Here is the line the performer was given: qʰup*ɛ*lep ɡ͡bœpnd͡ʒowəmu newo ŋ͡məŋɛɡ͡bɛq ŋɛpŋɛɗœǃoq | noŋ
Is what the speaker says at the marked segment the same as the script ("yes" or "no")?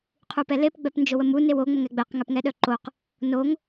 yes